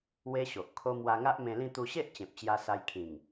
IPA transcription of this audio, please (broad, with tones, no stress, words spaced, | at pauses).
we˦ɕo˨ʔkʰo˦ mwa˧ŋa˦ʔmẽ˧lĩ˥˧ t̪u˧ɕe˦ʔ t͡ɕẽ˨p̚t͡ɕja˧sa˧jkʰĩ˨˩ŋ